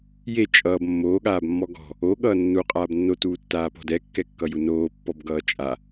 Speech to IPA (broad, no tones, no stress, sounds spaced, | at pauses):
j e t͡ʃʼ ʌː b mː oː ɠ aː b mː ɔ ɡ ɔ̤ | o ɠ ʌː nː u qʼ aː b nː o t uː tː aː p ɔ̤ d ɛ kː ɛ kː ʌ j u n oː pː ɔ b ɡ ʌː t͡ʃʼ a